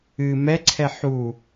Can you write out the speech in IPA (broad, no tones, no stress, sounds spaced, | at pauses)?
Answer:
ɨ m ɛ ǀʰ ɛ ħ u